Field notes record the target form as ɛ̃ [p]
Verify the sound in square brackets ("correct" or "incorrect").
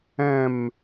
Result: incorrect